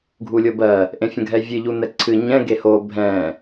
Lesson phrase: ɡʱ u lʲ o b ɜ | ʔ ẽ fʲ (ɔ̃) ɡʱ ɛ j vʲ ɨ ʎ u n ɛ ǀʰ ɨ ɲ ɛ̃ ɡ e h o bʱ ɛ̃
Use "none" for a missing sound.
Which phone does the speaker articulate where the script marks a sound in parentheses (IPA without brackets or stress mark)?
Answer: ə̃